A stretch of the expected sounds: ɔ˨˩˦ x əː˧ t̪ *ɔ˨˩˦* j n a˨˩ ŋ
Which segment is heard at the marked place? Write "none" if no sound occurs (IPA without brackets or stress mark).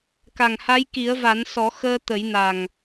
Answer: ə˨˩˦